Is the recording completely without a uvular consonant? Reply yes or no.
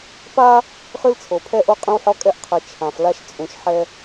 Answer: no